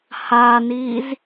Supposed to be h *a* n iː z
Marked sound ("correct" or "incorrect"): correct